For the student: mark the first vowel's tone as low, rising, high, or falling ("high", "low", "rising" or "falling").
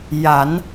rising